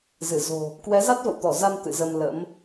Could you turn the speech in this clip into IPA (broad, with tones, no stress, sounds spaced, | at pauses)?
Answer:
z ɨ˧˩ z o̤˨˩ | k w ɛ˨˦ z a˦˥ t̚ v ə̰˧˨ w t̪ ɔ˧˩ z a˧ m t̪ ɨ̰˧˨ z ə˧ m l ə̰˧˥ m